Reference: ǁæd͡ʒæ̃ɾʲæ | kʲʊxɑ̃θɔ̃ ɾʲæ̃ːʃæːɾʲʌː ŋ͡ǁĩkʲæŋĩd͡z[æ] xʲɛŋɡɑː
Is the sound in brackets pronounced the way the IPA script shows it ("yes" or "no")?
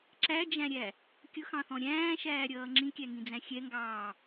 no